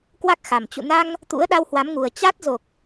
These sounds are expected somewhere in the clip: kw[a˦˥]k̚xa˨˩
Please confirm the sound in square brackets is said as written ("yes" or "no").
yes